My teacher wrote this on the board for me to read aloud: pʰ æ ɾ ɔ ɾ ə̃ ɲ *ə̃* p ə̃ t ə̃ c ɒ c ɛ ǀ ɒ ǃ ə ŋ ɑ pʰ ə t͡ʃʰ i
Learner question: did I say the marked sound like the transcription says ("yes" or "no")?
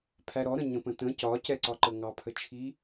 yes